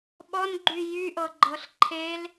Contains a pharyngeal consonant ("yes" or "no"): no